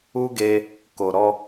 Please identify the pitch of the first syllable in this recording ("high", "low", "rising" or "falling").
high